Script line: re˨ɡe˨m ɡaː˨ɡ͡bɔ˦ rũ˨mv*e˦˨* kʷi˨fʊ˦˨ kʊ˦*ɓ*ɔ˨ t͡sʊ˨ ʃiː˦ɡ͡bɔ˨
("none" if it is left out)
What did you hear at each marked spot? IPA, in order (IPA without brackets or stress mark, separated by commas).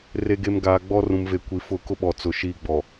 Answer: e˨, ɓ